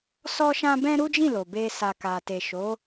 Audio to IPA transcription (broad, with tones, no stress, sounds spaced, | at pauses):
s ɔ˦ ʃ ã˦ b ɛ̃˦ ɾ u˦ d͡ʒ ĩ˦˨ l o˨ b e˧ s a˨ k a˨ t e˨ ʃ o˨˦